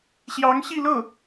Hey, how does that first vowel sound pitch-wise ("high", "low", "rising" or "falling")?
rising